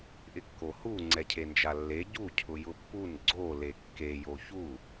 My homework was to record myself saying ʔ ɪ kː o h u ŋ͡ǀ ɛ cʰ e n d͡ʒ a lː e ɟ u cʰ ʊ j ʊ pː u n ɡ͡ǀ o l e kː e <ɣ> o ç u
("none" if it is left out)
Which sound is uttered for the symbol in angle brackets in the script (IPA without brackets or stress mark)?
j